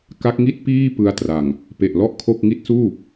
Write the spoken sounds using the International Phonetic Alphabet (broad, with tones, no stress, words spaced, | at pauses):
ka˦˥k̚ŋi˥˩t̚piː˥˩ pɯ˦˥a̯tra˨˩ŋ | pe˨˩ʔlɔ˥˩ʔkʰo˥˩k̚ ŋi˦˥t̚suː˥˩